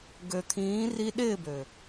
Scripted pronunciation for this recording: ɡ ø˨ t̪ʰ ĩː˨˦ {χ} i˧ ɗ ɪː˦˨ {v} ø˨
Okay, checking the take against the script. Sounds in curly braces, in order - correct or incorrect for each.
incorrect, incorrect

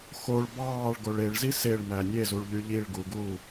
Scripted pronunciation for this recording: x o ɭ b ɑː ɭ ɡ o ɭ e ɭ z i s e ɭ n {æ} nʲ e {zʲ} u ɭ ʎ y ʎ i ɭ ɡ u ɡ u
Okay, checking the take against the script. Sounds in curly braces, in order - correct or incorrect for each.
correct, incorrect

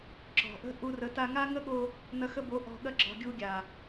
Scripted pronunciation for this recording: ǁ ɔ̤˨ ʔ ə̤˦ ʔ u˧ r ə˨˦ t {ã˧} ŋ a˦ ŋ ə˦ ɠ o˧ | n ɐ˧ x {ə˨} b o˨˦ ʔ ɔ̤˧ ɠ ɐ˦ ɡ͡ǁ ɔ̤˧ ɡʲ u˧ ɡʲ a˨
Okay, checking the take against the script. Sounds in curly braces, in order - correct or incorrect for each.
incorrect, incorrect

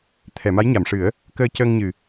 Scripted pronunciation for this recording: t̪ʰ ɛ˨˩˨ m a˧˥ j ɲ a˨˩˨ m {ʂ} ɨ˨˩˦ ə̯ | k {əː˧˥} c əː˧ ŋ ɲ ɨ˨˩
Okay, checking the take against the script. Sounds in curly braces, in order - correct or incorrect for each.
correct, incorrect

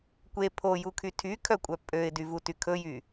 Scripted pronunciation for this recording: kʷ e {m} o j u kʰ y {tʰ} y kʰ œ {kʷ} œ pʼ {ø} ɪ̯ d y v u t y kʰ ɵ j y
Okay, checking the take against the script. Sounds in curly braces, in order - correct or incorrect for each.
incorrect, correct, incorrect, correct

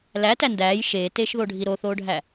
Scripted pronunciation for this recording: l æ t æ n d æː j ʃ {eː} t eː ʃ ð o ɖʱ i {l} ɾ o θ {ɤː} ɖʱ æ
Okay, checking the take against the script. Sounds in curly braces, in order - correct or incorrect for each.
correct, incorrect, incorrect

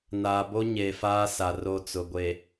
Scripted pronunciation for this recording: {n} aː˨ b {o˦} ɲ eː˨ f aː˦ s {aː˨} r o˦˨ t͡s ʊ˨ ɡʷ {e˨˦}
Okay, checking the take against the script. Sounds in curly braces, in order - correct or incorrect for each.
correct, correct, incorrect, incorrect

